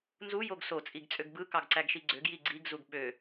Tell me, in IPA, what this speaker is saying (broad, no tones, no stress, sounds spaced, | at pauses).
n z u j o ɡ s o t͡sʼ i ɡ t͡sʼ ø ɡ b ɯ k ɑ ɡ ǀ æ ɡ ʃ i ɡ͡ǀ ø ɡ j i ɡ͡ǀ i ɡ z u ɡ ɓ ø